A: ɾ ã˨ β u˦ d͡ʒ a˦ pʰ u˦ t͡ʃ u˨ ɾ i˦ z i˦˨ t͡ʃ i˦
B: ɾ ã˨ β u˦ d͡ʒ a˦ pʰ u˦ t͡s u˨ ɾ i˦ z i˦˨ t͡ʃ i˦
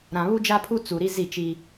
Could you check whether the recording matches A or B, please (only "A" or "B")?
B